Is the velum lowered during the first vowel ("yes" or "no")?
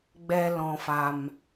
no